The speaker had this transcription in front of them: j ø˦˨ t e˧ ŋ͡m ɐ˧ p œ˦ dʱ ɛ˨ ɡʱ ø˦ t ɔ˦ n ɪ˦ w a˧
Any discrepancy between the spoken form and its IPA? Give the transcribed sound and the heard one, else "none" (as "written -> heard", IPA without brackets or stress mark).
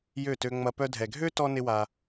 e˧ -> ø˧